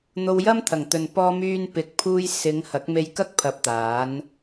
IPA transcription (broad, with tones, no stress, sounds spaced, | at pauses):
n̪ o˧ w j ɐ˥ m t̪ʰ ɐ˨˩ ŋ t̪ ɵ˨ n p ɔː˧ m yː˧ n p ɪ˨ k̚ pʰ uː˧ j s ɪ˨˧ ŋ h ɐ˨˥ k̚ m e˧ j k ɐ˥ k̚ pʰ ɐ˧ p̚ t̪ aː˨˥ n